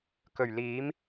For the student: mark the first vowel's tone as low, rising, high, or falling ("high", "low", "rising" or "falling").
low